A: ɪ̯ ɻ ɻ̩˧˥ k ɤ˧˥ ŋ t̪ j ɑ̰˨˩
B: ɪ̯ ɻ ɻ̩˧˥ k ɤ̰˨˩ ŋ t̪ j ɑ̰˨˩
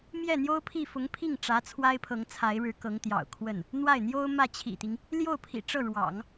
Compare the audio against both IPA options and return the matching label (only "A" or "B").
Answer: A